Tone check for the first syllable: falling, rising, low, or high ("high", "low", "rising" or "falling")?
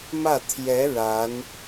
falling